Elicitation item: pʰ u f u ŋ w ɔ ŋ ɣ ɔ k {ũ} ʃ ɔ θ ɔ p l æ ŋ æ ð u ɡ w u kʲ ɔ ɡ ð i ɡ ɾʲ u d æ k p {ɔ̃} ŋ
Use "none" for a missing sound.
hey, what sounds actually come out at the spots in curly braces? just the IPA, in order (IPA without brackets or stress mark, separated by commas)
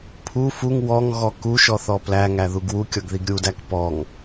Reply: u, ɔ